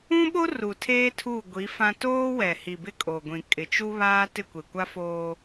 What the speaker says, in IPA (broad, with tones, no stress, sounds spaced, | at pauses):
ũ˦ ɓ o˦ r u˨ tʰ eː˦ tʰ u˦˨ ɡʷ i˨˦ f ã˦ t oː˦ w ɛ˨ h i˨ b ɪ˦ kʼ o˨ ɡʷ ĩ˨ kʼ ɪ˨ t͡ʃ u˦ β aː˦ t ɪ˦˨ kʷ e˨ kʷ a˦ f oː˦